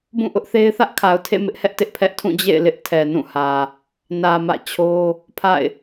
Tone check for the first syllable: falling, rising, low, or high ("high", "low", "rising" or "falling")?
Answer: falling